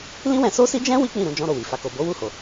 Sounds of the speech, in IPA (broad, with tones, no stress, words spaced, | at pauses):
lĩ˦wɛ̃˧so˦si˦ d͡ʒɛ̃˦ wi˦k͡pĩ˦˨ɾũ˧ d͡ʒɔ̃˦ɾo˦˨wi˨ fa˨ko˨bo˨˦ wu˦˨ho˨